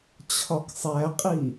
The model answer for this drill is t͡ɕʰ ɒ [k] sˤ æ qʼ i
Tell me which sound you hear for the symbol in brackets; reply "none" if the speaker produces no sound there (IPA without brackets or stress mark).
k